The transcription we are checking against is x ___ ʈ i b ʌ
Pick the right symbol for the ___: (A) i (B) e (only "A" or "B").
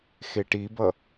B